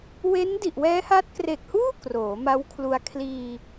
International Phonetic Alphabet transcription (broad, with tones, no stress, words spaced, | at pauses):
we˦˥ndi˨˩ʔwɛː˦˥ha˦˥t̚ kre˨˩k̚huː˥˩ kroː˩˦ma˦˥wkʰlu˧a̯ kʰliː˧